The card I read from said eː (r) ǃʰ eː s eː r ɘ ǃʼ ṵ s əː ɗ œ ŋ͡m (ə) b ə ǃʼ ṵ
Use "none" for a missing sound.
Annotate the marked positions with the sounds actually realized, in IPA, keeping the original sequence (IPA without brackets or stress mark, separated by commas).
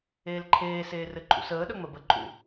l, ə